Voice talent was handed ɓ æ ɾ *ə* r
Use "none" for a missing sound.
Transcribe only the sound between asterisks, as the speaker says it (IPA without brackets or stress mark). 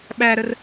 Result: ə